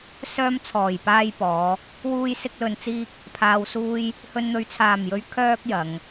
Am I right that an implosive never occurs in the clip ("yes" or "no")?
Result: yes